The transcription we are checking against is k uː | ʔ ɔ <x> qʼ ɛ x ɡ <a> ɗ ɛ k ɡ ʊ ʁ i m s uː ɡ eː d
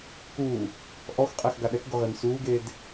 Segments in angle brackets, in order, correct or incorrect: correct, correct

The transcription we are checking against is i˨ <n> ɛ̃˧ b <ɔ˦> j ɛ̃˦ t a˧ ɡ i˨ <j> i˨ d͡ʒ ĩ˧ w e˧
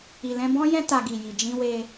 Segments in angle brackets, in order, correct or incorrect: incorrect, incorrect, correct

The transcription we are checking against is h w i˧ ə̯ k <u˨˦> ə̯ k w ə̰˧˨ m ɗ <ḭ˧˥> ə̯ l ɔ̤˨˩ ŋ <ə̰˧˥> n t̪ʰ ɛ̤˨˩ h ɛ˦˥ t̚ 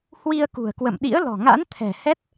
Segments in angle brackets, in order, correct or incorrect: incorrect, correct, incorrect

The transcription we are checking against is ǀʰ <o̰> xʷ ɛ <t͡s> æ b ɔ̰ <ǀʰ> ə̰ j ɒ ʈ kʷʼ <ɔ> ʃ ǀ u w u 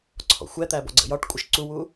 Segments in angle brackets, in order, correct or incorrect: incorrect, incorrect, incorrect, incorrect

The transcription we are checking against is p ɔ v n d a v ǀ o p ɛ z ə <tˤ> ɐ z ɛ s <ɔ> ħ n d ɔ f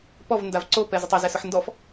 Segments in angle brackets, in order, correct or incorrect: correct, incorrect

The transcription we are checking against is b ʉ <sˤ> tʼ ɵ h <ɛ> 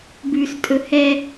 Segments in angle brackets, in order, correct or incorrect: incorrect, correct

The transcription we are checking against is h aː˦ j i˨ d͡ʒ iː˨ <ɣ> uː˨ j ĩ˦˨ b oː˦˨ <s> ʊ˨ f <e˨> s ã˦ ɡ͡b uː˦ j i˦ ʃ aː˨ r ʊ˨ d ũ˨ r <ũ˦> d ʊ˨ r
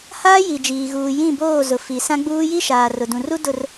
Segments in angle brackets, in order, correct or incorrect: correct, incorrect, incorrect, incorrect

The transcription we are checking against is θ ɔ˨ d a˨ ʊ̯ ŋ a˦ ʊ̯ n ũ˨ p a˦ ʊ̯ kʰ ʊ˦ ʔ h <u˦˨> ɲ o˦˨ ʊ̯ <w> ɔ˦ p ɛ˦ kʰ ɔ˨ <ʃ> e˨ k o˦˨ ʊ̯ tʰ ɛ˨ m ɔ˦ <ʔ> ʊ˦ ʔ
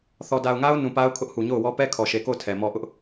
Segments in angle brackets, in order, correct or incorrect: incorrect, correct, correct, correct

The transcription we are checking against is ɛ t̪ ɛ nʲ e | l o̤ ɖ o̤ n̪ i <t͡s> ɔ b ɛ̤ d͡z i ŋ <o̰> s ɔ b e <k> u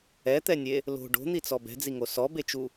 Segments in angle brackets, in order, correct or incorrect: correct, incorrect, incorrect

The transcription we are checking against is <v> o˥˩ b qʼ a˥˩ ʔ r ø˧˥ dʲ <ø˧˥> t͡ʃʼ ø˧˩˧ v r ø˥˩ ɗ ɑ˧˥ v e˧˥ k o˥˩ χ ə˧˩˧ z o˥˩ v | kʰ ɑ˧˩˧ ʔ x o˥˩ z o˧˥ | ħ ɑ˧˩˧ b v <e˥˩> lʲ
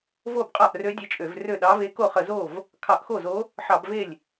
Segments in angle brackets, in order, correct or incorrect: correct, incorrect, correct

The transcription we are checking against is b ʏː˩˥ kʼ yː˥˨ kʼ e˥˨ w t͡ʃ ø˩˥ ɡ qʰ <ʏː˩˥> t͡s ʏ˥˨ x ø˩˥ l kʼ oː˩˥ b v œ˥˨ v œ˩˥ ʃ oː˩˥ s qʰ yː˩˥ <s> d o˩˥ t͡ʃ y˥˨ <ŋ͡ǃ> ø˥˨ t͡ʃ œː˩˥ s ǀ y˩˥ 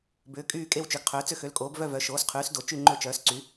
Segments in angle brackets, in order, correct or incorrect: correct, correct, correct

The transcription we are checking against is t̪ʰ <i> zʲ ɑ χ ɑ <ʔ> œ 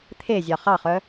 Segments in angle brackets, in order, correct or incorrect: incorrect, incorrect

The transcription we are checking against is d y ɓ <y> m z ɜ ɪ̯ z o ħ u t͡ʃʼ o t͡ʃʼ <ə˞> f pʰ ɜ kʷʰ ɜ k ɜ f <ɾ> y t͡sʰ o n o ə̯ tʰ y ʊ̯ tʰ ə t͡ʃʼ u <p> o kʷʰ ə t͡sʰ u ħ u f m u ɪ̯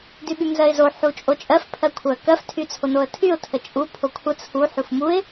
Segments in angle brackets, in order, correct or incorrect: correct, incorrect, incorrect, incorrect

